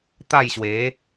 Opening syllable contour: falling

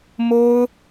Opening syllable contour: high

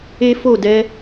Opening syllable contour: high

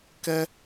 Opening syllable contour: high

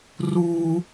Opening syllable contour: high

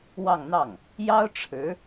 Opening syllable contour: falling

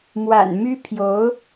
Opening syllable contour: low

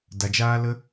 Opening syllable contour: low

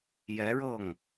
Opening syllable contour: rising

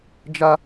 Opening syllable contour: high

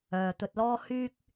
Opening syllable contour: low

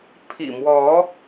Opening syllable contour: low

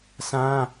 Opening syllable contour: high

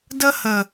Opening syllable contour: high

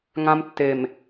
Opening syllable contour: high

